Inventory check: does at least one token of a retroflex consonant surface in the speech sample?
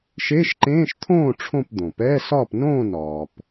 yes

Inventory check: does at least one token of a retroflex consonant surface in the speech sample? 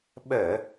no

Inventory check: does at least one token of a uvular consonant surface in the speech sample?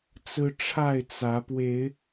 no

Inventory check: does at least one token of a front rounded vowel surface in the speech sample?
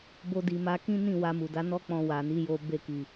no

